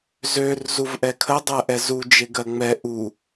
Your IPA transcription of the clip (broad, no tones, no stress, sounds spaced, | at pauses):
z ø r z u v ʔ ɛ kʰ ə dˤ ɜ ʔ ɛ z u d͡ʒ e ɡ ɜ ŋ͡m ɛ ʔ u